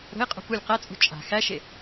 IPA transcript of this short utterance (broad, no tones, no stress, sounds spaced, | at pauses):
ɾ ə̤ ɪ̯ qʼ ṳ p u lʲ q æ t͡sʼ ṳ t͡ʃʼ a̤ x æ ʃ e